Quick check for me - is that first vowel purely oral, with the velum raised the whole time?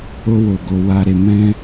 yes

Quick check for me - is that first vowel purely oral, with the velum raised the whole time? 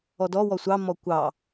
yes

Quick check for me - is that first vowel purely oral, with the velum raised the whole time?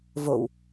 yes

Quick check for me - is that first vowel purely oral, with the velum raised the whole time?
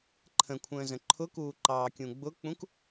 no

